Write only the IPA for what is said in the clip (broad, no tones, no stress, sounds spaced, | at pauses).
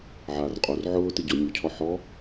ʕ a r qʼ o r ʕ ʊː t ɪ ɟ ʊ nʲ u cʰ ɔ ħ ɔ